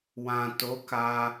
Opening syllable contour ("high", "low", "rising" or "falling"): low